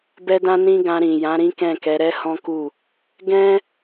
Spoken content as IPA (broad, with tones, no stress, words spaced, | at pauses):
bɛ˧dã˧ nĩ˦ɡã˧ɾĩ˨ jã˨˦ɾĩ˦kɛ̃˦˨kɛ˨˦ ɾɛ˦hɔ̃˦ku˦˨ | ɡɛ̃˦